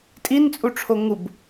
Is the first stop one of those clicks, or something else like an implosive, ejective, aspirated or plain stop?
ejective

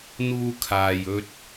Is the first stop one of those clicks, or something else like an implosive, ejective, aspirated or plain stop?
aspirated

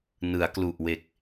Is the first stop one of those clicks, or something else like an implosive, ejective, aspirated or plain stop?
plain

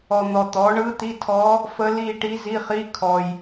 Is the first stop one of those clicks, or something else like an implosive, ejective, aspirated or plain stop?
plain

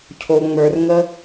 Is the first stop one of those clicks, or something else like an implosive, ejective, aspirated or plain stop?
aspirated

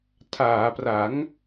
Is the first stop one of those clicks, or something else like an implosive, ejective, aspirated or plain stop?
aspirated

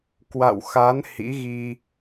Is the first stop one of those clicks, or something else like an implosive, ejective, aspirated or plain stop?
plain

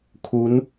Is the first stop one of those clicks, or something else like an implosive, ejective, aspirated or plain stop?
aspirated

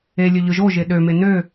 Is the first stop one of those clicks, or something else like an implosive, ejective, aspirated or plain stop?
implosive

